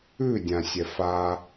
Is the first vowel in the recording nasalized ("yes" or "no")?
no